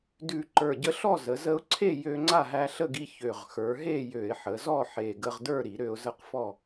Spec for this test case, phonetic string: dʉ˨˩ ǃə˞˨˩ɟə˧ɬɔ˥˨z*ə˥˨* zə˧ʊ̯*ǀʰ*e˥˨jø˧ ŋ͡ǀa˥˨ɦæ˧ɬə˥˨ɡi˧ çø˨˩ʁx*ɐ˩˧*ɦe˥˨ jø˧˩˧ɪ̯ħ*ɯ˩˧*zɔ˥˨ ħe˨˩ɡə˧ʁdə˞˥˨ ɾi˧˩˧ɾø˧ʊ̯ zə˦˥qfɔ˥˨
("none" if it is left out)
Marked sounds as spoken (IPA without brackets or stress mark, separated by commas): ə˩˧, ǀʰ, ə˞˩˧, ə˩˧